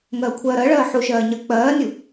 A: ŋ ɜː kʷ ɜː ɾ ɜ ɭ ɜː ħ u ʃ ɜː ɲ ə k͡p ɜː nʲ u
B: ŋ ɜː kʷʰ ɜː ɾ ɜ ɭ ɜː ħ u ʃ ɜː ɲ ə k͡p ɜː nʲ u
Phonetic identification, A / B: B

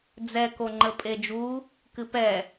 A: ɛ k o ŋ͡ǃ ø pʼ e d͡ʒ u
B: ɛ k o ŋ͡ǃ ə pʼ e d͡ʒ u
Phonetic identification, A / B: B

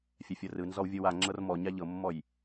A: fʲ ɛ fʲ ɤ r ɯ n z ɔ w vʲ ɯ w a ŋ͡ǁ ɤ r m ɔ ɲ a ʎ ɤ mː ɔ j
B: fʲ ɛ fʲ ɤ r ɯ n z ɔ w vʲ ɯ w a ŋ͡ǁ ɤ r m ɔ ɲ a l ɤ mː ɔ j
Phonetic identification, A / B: A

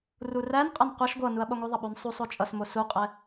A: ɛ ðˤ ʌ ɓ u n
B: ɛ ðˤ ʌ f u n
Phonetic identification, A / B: A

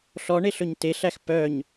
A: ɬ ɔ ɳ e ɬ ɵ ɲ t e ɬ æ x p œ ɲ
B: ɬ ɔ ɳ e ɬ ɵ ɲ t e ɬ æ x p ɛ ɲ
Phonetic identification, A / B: A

